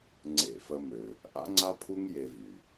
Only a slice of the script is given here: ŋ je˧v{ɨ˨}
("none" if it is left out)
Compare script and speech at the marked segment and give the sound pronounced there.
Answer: y˨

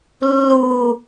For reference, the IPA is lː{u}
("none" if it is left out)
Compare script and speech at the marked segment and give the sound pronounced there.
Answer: u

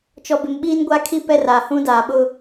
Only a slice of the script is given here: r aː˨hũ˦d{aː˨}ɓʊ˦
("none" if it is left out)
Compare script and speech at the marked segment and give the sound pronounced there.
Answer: aː˨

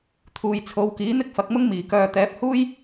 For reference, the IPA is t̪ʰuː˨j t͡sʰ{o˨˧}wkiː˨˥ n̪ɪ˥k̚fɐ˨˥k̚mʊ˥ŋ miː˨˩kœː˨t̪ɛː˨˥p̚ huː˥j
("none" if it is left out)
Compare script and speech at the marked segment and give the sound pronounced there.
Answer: o˨˧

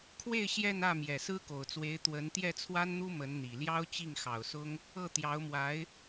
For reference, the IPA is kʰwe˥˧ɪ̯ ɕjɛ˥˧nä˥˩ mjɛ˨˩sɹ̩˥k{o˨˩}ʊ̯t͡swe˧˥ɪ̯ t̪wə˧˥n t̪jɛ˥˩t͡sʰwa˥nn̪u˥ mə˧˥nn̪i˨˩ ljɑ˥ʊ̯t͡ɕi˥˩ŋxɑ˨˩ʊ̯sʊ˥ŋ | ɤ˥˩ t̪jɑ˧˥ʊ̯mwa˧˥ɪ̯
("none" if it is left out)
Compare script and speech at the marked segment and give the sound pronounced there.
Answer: o˨˩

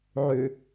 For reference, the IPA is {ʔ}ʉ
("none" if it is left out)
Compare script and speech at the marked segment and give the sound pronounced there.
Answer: ʕ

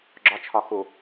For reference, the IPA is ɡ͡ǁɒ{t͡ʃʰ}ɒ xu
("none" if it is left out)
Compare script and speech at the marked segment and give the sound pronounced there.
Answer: t͡ʃʰ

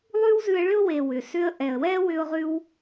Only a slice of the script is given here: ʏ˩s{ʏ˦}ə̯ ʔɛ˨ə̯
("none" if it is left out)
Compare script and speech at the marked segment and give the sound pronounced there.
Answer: ʏ˦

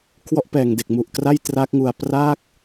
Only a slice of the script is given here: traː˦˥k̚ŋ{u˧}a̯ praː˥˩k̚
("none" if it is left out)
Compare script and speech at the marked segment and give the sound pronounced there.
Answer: u˧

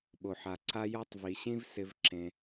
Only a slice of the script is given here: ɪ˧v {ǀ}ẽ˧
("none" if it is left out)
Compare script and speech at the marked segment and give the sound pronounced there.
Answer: ǁ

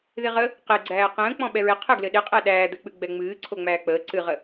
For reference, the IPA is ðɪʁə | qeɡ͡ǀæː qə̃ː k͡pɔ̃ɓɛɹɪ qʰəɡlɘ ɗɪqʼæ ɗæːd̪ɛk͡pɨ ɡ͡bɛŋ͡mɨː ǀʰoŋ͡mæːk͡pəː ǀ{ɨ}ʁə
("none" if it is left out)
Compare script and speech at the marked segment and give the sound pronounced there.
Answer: ɨ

